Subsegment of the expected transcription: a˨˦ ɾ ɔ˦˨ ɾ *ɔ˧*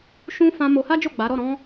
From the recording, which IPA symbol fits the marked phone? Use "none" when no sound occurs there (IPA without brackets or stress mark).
ɔ̃˧